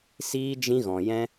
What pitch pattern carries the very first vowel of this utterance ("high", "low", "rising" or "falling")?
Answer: high